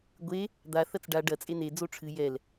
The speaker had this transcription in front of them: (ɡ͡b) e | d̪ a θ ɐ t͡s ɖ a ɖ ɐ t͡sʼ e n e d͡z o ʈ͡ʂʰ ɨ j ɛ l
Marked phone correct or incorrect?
incorrect